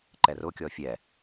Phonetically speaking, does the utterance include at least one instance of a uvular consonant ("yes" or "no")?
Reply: no